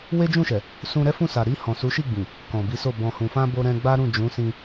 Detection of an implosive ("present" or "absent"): absent